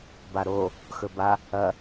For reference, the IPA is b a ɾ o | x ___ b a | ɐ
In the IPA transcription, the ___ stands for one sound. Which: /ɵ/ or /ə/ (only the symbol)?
ɵ